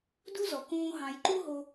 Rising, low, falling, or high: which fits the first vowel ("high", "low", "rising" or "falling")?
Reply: high